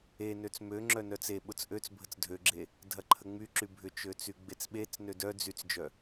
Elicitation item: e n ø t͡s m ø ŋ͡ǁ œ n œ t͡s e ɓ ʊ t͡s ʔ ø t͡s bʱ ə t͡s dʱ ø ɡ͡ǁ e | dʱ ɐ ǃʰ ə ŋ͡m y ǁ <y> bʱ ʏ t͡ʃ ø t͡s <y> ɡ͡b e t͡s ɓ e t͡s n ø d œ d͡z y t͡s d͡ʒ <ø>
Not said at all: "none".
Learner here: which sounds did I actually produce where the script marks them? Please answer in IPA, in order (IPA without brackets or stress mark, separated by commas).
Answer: y, y, œ